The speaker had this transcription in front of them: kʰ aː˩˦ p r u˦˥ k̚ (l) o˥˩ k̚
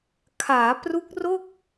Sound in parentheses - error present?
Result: yes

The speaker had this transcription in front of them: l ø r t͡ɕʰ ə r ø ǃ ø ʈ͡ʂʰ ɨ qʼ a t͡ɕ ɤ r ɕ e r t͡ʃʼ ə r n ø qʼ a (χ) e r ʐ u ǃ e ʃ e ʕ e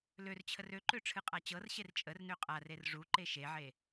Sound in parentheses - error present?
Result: yes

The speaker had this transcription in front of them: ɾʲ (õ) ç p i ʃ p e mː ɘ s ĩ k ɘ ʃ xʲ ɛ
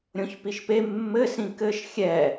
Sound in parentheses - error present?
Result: no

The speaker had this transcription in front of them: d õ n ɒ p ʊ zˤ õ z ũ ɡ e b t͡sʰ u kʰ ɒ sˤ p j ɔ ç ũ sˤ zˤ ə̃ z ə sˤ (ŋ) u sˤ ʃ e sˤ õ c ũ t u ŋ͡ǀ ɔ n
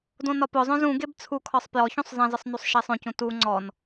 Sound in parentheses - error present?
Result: yes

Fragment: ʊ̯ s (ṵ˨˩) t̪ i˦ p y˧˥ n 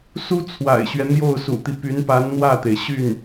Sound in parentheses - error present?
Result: no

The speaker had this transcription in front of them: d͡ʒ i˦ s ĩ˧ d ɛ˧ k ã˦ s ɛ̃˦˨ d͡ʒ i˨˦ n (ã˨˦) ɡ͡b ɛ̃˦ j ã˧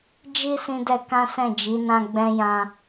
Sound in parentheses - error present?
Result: yes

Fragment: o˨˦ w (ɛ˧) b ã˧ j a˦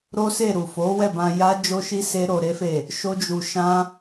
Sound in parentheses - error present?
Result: yes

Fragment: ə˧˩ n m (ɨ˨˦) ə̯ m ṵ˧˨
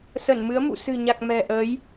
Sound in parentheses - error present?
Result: no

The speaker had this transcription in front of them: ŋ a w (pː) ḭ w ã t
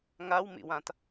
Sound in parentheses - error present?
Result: yes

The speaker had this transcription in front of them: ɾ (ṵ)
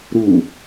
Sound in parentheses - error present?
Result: yes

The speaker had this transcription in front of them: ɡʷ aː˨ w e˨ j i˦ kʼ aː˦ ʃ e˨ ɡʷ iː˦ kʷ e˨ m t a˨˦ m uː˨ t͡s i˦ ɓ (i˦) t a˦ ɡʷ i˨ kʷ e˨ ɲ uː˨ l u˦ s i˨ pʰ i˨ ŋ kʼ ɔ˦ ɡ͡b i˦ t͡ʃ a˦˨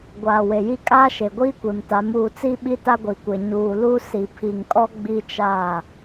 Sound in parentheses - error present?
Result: no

